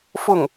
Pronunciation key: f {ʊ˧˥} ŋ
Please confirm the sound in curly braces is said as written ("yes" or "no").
no